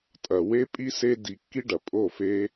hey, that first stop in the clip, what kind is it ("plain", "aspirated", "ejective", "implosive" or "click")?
ejective